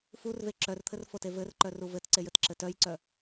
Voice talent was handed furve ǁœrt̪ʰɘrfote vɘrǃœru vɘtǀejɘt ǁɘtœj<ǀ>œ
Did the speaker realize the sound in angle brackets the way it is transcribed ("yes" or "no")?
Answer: yes